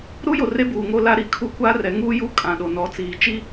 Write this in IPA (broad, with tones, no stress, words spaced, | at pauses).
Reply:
ɾu˦jo˨ re˦buː˨ ŋo˦la˦ɾi˨ kʰu˦ kʷa˦rɛ˨˦ŋuː˦ju˦ kʼã˨ɗo˨nɔ˨˦ t͡siː˨t͡ʃi˦